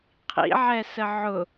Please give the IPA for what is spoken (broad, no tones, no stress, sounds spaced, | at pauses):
qʰ ḭ ʕ ɛ s ə ʕ ʊ